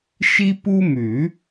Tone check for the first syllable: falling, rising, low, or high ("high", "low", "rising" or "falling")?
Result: high